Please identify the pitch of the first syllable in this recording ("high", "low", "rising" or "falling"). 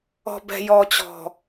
low